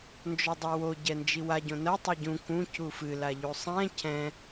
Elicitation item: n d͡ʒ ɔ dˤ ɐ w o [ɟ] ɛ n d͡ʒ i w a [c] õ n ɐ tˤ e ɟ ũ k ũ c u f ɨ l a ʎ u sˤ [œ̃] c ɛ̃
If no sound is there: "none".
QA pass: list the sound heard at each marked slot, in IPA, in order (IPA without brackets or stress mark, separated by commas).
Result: ɟ, ɟ, ɛ̃